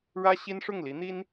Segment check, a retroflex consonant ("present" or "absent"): present